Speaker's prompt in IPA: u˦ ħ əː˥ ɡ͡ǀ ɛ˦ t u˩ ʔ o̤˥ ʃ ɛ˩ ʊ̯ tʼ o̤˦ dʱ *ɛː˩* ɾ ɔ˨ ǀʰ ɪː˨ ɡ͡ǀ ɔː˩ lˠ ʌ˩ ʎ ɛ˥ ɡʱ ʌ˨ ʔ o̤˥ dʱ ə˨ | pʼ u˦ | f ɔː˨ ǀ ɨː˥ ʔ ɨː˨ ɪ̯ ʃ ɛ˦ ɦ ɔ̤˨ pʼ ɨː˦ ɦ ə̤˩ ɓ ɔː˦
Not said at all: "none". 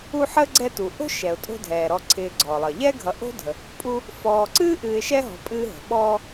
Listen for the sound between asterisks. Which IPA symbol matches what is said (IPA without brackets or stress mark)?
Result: ɛː˩